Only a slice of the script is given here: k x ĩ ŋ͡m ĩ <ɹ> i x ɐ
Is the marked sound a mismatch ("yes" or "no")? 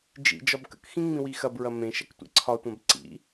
yes